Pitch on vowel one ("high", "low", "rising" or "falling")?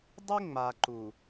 high